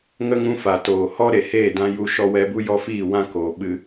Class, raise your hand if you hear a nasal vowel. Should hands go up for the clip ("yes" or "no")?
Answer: yes